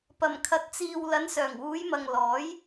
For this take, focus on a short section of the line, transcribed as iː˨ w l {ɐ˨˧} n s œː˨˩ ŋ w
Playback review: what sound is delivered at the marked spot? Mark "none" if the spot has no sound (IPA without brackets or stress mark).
ɐ˨˧